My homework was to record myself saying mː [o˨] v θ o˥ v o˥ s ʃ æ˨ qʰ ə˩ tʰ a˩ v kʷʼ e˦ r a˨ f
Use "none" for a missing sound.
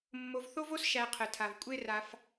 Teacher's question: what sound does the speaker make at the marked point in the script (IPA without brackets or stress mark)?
o˨